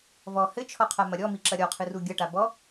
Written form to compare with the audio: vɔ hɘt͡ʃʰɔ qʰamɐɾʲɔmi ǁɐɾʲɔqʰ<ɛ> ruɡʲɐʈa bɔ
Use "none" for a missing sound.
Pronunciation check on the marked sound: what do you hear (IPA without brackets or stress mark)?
ɨ